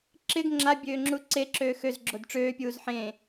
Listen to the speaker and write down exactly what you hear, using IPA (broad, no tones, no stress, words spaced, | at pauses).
ǁɪɡ ŋ͡ǁabʲøːŋ͡ǁu ǀeǁøː xøzɡ͡ǁod ʈ͡ʂøːpʲuːz ħẽ